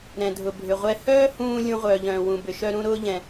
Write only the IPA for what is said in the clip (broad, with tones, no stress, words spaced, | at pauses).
ɾɛ̃˩dʱʊ˩bʱʏ˩ʁʷɛ˧ hœː˥hũː˧ lʲũ˧ʁʷœː˩ʎœ̃ː˩wũ˩ bʏ˩ʃœ˥ɾũ˥ ɾʊː˥ʎɛ̃˩